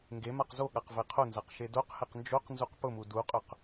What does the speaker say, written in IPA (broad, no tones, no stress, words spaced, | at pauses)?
ŋɡemaq zoɠaq vɛqʰonzaq ʃedoqhɛq nd͡ʒoqnzuq pʊmu duqʼʊq